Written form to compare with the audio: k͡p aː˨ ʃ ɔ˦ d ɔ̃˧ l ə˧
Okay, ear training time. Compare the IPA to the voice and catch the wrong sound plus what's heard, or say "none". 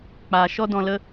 none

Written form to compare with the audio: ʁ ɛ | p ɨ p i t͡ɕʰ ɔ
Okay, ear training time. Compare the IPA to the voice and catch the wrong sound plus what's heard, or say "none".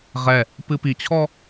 none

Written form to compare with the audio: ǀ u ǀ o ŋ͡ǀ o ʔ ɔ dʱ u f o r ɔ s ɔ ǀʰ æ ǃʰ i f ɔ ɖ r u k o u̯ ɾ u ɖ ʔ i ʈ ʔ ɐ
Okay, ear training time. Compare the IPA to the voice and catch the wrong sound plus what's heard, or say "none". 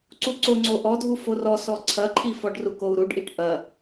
æ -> ɐ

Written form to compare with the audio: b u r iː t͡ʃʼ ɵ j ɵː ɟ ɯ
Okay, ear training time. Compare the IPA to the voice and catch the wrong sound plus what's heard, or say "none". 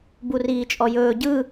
ɵ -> ɔ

